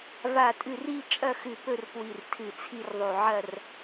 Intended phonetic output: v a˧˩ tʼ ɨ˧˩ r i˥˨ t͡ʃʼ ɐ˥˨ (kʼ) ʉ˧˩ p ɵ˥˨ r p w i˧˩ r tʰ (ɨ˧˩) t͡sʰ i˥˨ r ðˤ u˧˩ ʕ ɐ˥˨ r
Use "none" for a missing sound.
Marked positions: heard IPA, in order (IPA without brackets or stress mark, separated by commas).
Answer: x, ɨ˧˩